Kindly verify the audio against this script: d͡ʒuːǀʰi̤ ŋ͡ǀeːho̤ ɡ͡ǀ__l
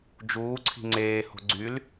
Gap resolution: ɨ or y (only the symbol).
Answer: y